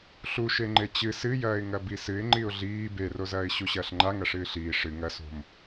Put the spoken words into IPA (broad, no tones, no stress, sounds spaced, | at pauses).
ɬ u ʃ e ŋ͡ǃ e t͡ɕ ɨ s ɨ j ɐː ɪ̯ ŋ ɐ b i s ɨ ɪ̯ ŋ͡ǃ i ʊ̯ ɮ iː b e r o z ɐː ɪ̯ ɕ u ɕ ɐː ɬ ŋ͡ǃ a ŋ ɐ ʂ ɨː ɬ iː ʂ ɨ ŋ ɐ s o̤ m